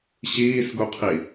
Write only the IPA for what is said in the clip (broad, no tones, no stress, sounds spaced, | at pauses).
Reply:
ɕ iː s ɡ u qʰ i